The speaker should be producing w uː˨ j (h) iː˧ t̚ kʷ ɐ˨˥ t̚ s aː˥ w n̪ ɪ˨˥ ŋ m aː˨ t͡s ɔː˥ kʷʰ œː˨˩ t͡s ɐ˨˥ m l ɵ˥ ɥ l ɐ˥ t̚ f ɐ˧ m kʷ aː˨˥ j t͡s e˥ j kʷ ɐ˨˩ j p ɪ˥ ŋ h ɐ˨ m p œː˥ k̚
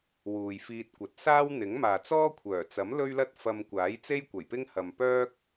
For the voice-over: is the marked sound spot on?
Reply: no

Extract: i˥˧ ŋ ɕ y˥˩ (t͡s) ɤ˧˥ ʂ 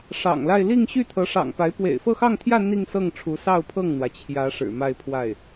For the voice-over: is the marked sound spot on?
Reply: no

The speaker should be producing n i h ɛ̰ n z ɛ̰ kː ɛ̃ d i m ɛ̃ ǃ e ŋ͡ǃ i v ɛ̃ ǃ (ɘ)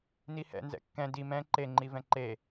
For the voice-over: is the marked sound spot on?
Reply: no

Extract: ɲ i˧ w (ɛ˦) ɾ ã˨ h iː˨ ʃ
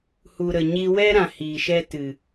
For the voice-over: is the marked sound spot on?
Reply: yes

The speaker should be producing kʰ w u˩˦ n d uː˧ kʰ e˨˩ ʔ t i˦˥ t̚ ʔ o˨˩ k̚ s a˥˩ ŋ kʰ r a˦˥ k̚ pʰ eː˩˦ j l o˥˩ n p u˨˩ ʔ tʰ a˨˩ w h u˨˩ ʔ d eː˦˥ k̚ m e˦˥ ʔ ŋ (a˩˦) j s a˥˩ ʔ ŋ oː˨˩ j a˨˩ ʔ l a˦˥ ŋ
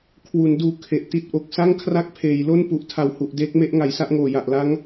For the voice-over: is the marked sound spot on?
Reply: yes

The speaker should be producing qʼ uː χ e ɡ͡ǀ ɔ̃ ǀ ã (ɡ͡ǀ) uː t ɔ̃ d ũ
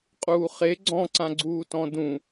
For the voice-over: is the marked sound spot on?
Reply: yes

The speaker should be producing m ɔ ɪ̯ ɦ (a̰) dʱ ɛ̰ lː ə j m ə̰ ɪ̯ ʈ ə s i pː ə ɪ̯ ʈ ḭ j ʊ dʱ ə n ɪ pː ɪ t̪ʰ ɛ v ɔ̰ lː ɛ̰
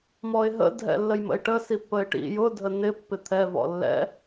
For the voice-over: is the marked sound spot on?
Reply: no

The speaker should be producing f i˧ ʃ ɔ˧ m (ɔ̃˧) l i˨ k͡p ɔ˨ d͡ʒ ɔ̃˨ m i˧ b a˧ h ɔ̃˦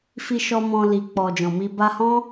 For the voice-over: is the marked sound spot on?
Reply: yes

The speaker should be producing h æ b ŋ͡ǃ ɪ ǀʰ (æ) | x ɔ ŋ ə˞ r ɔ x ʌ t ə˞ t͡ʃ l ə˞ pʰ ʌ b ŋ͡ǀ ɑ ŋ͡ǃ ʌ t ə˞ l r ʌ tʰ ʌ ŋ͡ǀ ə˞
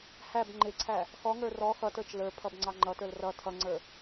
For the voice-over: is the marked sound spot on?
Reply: yes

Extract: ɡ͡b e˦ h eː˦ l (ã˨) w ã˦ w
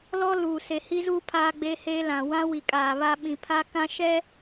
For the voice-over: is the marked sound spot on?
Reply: yes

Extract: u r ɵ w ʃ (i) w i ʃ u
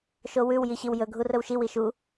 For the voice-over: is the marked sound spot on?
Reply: yes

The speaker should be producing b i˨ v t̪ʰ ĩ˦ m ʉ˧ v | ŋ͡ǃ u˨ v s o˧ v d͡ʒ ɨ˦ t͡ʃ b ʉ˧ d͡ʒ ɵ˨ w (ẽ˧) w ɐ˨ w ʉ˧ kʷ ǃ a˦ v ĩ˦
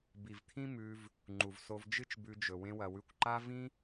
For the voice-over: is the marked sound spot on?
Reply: yes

